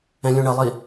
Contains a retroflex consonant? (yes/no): yes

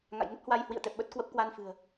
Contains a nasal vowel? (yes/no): no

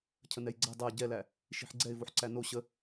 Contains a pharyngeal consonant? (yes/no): yes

